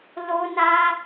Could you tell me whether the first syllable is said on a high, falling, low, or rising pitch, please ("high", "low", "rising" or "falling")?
high